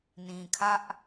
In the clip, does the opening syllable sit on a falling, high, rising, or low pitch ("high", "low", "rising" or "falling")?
low